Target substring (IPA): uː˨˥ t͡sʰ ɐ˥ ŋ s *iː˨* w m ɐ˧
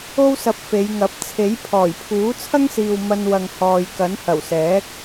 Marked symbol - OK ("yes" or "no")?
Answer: yes